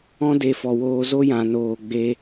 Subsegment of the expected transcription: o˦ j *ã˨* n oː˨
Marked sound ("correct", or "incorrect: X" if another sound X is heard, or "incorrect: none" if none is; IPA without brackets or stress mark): correct